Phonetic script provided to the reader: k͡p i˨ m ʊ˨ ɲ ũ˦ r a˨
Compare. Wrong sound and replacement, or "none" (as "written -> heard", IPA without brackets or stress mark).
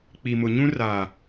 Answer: none